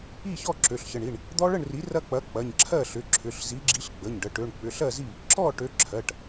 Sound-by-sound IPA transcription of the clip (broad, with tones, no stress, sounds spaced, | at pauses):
i˥˩ ç ɔ˥˩ ǁ ø˩˧˩ ɬ ç ə˩˧˩ ɳ i˩˧˩ ɳ | d̪ ɔ˦ ɭ ə˥˩ ɳ r i˩˥ r ɐ˦ k͡p ɐ˩˥ k͡p ɐ˩˧˩ ɲ ǁʰ ɜ˥˩ ɬ ʏ˩˧˩ ǁʰ ʏ˩˧˩ ɬ z i˩˥ ɡ͡ǁ i˩˥ ɬ ɡ͡b ə˩˧˩ ɲ ɖ ə˩˧˩ ʈ ø˩˧˩ ɳ k͡p ʏ˩˧˩ ɬ ɜ˥˩ z i˥˩ | ǁ ɔ˥˩ ʈ ø˩˥ ǁʰ ɜ˩˧˩ ʈ